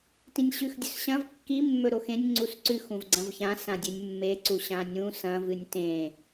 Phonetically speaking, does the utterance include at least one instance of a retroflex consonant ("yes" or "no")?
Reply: no